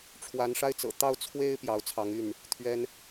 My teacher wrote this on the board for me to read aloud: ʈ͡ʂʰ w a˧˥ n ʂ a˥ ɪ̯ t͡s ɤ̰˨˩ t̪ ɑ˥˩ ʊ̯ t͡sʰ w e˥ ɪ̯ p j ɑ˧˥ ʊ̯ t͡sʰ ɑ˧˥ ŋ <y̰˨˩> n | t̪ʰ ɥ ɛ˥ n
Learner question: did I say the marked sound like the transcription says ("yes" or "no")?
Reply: no